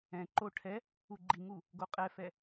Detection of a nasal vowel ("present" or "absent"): present